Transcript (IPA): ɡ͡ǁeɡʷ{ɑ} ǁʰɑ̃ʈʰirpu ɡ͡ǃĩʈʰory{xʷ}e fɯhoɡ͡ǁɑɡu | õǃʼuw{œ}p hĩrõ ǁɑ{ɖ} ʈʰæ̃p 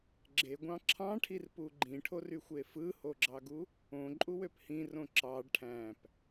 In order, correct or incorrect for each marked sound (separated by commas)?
incorrect, correct, incorrect, correct